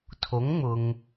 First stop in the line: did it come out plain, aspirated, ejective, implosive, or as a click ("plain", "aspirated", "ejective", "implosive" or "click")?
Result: aspirated